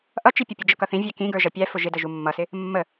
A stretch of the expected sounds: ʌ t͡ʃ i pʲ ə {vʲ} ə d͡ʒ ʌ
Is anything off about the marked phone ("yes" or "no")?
yes